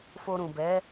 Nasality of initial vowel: oral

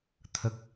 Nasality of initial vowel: oral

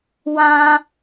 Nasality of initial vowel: nasal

